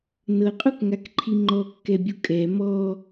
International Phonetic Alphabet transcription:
nɤqʼukŋakǃʰi ŋ͡ǃɔkːɛbʲu kʼɛ mɔ

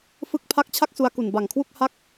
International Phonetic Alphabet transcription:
fɯ˦˥k̚pʰa˦˥k̚ t͡ɕʰa˥˩k̚su˧a̯ku˨˩n ba˨˩ŋkʰwu˥˩k̚ ha˥˩k̚

